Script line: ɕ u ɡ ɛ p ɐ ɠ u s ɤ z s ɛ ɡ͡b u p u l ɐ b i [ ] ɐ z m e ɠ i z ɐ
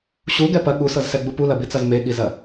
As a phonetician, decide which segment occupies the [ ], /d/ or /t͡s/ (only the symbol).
t͡s